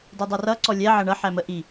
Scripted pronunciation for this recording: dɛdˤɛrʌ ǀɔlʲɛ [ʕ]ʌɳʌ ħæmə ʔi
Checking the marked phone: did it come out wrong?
no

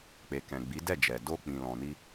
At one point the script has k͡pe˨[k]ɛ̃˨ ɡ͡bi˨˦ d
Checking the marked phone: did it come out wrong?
no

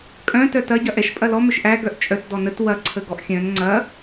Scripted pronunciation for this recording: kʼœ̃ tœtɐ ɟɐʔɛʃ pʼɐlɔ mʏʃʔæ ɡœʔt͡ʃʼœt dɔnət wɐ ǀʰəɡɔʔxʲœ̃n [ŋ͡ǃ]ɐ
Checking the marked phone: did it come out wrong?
yes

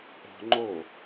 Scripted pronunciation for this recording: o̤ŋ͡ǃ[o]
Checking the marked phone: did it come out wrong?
no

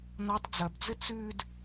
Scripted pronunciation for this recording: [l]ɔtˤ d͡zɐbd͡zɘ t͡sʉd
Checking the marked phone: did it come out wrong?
yes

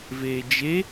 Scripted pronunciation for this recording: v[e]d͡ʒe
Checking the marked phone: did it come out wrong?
yes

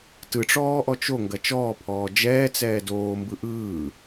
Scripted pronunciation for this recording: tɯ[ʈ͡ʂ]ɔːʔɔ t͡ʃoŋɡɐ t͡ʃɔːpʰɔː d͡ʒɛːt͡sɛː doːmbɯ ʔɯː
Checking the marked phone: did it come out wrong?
no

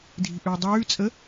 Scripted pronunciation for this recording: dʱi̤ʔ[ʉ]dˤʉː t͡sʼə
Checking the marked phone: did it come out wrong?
no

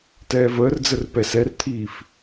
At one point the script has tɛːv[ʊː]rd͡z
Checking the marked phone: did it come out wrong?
yes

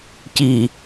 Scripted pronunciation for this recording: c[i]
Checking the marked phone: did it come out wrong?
no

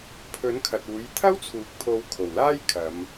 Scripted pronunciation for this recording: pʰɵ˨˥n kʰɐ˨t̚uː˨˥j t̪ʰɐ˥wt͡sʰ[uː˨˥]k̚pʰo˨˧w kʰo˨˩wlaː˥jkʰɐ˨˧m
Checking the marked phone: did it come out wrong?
yes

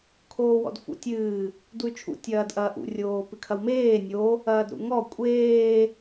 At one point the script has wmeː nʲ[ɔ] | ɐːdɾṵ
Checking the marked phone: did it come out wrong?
yes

